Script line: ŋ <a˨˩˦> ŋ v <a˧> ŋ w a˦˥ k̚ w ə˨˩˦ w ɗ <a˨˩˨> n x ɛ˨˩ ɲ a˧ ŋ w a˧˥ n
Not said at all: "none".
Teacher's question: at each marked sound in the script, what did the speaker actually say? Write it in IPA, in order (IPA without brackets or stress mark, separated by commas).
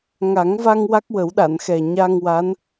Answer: a˨˩˦, a˧, a˨˩˨